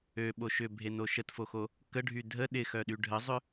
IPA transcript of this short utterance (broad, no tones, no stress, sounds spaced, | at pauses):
ø ɓ o ʃ ʏ bʱ e n o ʃ ə t f o x o | k ə ɖʱ y dʱ ə ɗ ɪ x œ ɗ y ɖʱ ə zˤ ʏ